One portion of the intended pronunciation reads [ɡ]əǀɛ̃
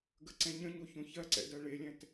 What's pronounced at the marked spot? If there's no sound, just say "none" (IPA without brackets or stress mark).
ɡ